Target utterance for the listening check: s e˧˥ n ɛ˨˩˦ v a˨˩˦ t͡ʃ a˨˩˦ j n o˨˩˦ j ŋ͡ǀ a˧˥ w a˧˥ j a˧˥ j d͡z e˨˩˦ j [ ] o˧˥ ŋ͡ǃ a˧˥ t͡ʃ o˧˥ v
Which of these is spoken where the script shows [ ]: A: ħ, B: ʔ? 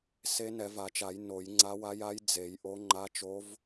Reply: B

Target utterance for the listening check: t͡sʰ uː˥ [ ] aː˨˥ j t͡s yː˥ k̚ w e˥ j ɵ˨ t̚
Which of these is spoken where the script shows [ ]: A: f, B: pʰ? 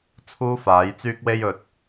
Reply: A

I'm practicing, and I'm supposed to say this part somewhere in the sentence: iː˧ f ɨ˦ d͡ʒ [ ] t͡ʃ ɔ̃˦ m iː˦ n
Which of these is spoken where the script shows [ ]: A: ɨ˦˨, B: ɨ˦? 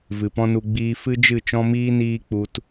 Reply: A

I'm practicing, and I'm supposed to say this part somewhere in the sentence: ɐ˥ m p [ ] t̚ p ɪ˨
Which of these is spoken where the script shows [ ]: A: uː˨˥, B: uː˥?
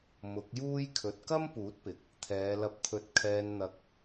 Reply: A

